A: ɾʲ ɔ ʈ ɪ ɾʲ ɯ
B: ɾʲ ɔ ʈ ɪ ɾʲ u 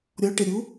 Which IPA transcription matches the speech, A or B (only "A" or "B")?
B